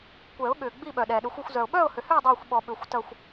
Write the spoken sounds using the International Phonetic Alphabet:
kʷ ɛ˨˩˦ ʊ̯ ɠ ʏː˩ ɡ͡b i˥˨ ɓ œ˩ ɗ ɛː˩ ɗ ʏ˨˩˦ xʷ o˥˨ xʷ z œ˩ ʊ̯ ɓ œː˥˨ ʊ̯ h ʏ˩ h ʏ˥˨ ʊ̯ dˤ œː˥˨ xʷ ɓ ɔ˨˩˦ ɓ ʏː˩ xʷ t ɐ˥˨ xʷ

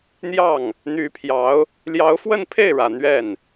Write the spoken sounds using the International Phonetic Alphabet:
n̪ j ɑ˥˩ ŋ | n̪ y˧˥ pʰ j ɑ˧˥ ʊ̯ | l j ɑ˧˥ ʊ̯ f w ə˥˧ n pʰ e˥˩ ɪ̯ ɻ ä˨˩ n̪ ɥ ɛ˥˩ n

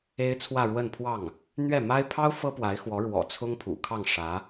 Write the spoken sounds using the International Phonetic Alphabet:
e˥ ɪ̯ t͡sʰ w ä˥˧ ɻ w ə˥˧ n pʰ w ɑ˥˩ ŋ | n̪ ɥ ɛ˥˩ m a˥ ɪ̯ pʰ ɑ˥ ʊ̯ f ɤ˥ p w a˧˥ ɪ̯ x w ɔ˧˥ ɻ w ɔ̰˨˩ t͡sʰ ʊ˥ ŋ pʰ ṵ˨˩ kʰ ɑ˥˩ ŋ ʂ ä˧˥

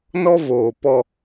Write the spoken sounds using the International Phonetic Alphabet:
n ɔ˦ v oː˨ p ɔ˦

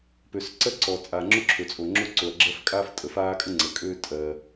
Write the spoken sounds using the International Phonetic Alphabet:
p ø˩ s ǀ ɜ˦ ǀ ɔ˩ t͡sʼ aː˩ ŋ͡ǁ o˦ ǁʰ ø˩ t͡sʼ o˩ ŋ͡ǁ o˦ ǀ o˩ ɐ̯ ɡ͡ǁ ɜ˦ f kʼ aː˦ f tʼ ə˩ f aː˦ kʼ ə˦ ŋ͡ǀ ə˩ kʼ øː˦ tʼ ɜ˩

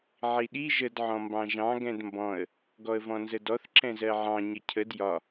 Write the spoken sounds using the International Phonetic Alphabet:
ʕ i ɗ i ʒ ə d ʕ ɔ̃ m b ɑ̃ ʒ ɑ̃ ɡ ɛ̃ d m b ɔ̃ ə̯ | ɡ ɔ ə̯ v ɔ̃ n z ə d ɔ θ ǁ ɛ̃ z ɜ ʕ ɑ̃ ɲ ə cʰ ə d j ɒ

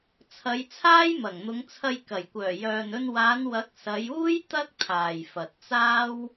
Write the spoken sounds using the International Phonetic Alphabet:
t͡sʰ ɐ˨˧ j t͡sʰ aː˥ j m ɐ˨˩ ŋ n̪ ʊ˨˧ ŋ t͡sʰ ɐ˧ j k ɐ˨˩ j kʷ œː˨˩ j œː˨ n ɵ˧ n w aː˨˧ n w ɐ˨˥ k̚ s ɐ˨˧ j uː˥ j t̪ ɐ˥ k̚ t̪ʰ aː˨ j f ɐ˨ t̚ t͡s aː˥ w

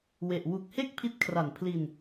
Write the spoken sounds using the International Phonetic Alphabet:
w e˨˩ ʔ w u˨˩ k̚ h e˥˩ k̚ pʰ i˦˥ t̚ kʰ r a˨˩ n pʰ l i˧ n

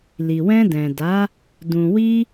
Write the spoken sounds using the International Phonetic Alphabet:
l i˨ w ɛ̃˧ d ɛ̃˨ d a˨˦ | d ũ˨ w i˧

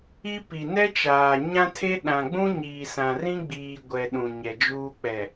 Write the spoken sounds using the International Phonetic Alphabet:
i˦ p i˨ n ɛ˦ t͡ʃ aː˨ ɲ ã˦ tʰ e˦ ɗ ã˨ ɡ͡b ũ˦ ɲ iː˨ s ã˨ r ĩ˦ ɡ͡b iː˨ ɡʷ ɛ˨ ɗ ũ˨ ɲ ɛ˨ d͡ʒ uː˦ k͡p ɛ˨

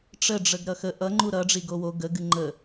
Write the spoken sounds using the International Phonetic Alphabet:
ʈ͡ʂ ə ɖ͡ʐ ə ɡ ɾ ʌ x ə ʔ ʌ ŋ͡ǃ u ɾ ʌ ɖ͡ʐ i ɡ o w o ɡ ə ɡ ɨ ŋ͡ǃ ə

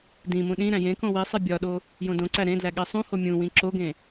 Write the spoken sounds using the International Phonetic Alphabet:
d ĩ m ũ ɗ ĩ ɾ æ̃ j ẽ k õ w i sˤ e bʲ ɒ ɗ o | j õ d õ ǀ æ ɾ ẽ d l æ ɠ e sˤ ũ h o mʲ ũ w ĩ ǁ o ɡ ẽ

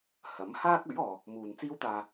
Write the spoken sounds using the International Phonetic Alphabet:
h ɐ˨˥ m h aː˥ k̚ ɵ˨˥ ɥ ɔː˨ | m uː˧ n t͡s iː˥ w t̪ aː˧

